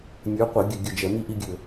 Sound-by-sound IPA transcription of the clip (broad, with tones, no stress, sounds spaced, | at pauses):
nʲ ə˞˨˦ qʷ ɘ˧˩˧ ɡʲ ɘ˦˨ ɡʲ ə˦˨ d͡ʒ ɛ˧˩˧ m i˦ ʔ i˦ ɡʲ ɘ˦˨